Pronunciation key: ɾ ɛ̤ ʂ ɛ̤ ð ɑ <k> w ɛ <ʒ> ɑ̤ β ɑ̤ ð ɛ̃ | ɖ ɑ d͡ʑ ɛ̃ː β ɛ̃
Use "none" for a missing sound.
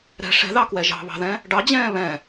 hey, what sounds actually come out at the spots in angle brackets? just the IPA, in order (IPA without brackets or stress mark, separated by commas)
k, ʒ